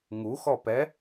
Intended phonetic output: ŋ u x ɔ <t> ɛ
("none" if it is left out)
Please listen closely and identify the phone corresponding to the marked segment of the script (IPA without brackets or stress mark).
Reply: p